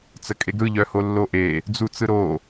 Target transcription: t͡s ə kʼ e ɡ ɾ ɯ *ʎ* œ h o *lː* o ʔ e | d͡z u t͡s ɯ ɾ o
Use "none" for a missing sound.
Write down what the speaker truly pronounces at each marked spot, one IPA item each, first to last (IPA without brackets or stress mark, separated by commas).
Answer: ʎ, lː